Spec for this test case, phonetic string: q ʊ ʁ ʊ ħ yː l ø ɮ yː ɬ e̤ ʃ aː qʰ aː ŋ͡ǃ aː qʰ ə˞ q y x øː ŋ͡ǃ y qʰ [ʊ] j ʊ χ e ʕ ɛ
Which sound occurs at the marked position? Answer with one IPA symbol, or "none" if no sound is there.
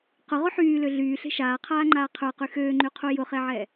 u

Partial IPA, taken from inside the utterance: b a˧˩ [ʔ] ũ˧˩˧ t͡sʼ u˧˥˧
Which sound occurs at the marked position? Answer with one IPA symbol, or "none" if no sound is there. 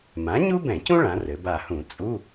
h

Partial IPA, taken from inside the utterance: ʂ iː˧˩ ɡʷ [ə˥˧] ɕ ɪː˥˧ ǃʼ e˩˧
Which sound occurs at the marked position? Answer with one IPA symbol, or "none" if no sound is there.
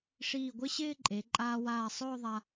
ɪ˥˧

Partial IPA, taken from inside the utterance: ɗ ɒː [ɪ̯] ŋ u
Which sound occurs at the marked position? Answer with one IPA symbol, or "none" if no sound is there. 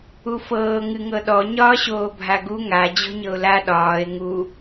ɪ̯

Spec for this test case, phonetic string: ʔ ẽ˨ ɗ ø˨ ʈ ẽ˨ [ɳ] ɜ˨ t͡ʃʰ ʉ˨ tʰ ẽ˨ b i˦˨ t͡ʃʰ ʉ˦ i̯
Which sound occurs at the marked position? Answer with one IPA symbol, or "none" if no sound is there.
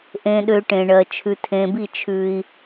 ɳ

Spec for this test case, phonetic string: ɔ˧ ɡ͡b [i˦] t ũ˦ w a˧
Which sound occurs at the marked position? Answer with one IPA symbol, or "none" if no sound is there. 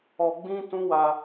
ĩ˦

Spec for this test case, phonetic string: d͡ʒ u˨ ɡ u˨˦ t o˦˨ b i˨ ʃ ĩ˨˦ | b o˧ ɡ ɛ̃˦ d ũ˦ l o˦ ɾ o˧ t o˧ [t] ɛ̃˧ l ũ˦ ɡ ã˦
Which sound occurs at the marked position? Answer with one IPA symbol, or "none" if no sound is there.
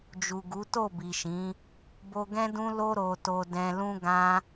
d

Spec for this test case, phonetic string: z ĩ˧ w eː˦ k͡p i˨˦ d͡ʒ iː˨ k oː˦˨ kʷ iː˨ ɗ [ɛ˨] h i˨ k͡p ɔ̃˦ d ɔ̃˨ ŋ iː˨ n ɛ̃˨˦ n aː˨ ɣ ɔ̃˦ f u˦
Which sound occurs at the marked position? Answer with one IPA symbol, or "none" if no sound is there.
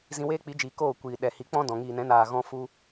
ɛ˨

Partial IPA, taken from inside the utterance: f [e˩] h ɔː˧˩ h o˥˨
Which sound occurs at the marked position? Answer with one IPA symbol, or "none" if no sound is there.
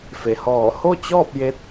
e˩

